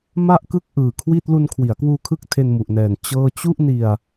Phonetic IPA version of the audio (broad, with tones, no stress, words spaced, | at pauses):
ma˥˩ʔkɯ˥˩k̚ ʔɯː˨˩kʰwi˥˩t̚ lu˧nkʰwi˩˦a̯kwuː˧kʰɯ˦˥k̚ tʰe˧nmu˨˩ʔnɛː˨˩n t͡ɕɤː˥˩ t͡ɕu˥˩ʔni˧a̯